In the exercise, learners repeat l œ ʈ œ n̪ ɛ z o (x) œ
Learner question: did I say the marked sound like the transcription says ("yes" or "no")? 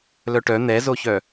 no